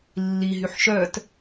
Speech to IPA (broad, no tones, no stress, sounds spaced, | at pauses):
lː i ɦ y ħ ʃ œ t